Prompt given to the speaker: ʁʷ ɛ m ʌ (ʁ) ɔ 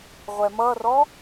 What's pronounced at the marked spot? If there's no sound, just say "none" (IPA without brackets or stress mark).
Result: r